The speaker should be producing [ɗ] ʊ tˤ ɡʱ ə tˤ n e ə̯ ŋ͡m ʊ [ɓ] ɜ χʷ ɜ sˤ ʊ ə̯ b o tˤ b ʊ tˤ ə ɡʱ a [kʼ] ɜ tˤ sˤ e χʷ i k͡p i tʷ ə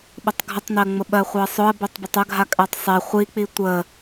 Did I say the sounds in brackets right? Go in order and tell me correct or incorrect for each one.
incorrect: ɓ, correct, correct

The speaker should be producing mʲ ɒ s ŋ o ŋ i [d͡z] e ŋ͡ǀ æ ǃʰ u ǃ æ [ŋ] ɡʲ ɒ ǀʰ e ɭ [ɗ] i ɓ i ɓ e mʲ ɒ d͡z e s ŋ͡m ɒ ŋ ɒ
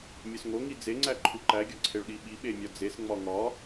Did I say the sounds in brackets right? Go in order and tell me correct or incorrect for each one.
correct, incorrect: none, correct

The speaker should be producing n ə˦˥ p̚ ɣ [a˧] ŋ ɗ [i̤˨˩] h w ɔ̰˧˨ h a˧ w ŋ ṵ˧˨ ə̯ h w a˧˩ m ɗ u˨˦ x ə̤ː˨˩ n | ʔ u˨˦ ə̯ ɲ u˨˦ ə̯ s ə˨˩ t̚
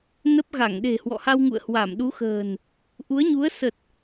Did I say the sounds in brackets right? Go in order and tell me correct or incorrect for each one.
incorrect: a˧˩, incorrect: e̤˨˩

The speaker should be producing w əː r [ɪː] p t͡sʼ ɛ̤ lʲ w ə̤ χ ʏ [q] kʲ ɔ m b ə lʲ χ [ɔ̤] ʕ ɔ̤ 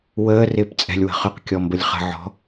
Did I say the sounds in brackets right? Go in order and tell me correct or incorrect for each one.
correct, correct, incorrect: ə̤

